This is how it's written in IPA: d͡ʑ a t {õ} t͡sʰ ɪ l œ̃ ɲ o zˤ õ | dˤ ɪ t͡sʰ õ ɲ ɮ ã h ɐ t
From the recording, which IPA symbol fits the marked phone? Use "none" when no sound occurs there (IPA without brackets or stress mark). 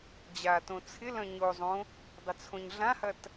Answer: õ